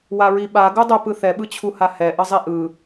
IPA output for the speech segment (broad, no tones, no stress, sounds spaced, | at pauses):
w a ɹ i ɓ a ɡ u dˤ ə p ɯ θ ɛ ɓ ɯ t͡ɕʰ u h a h ɛ ʔ ə zˤ i ʔ ɯ